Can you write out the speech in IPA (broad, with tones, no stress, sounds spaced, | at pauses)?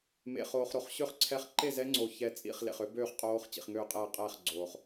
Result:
m ḛ˨ χ oː˨ χ ɾ o˨ χ ɕ ø˥˨ χ ǀʰ ɛ˦˥ χ ǃ e˥˨ z ɛ˦˥ ŋ͡ǀ o˨ ç ɛ˦˥ t͡sʼ ḭ˥˨ χ l ḛ˨ χ ø˦˥ b øː˥˨ χ qʼ oː˦˥ χ t͡ɕ ḭ˨ χ ŋ øː˥˨ qʼ ɛː˥˨ qʼ ɛː˥˨ χ ɡ͡ǀ oː˨ χ